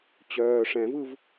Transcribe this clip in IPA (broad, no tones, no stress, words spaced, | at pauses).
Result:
t͡ɕœː ʂɛ̃vɯv